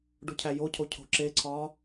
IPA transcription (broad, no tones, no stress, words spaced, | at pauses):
ɖucʰæjocʰo cʰo̤ǁeǀʰɒː